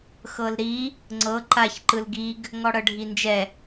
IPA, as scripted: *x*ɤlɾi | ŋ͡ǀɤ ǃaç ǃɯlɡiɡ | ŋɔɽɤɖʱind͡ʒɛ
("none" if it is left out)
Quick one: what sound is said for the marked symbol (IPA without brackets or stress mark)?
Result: x